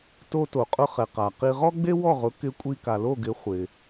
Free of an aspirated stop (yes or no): yes